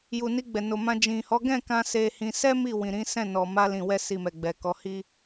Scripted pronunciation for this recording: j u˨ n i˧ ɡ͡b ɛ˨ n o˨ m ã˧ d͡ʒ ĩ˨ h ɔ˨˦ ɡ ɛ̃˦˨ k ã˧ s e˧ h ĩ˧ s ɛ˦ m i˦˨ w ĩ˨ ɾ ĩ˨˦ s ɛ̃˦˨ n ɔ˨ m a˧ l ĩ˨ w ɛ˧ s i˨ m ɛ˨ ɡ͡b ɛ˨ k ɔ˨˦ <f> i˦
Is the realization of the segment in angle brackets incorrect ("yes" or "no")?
yes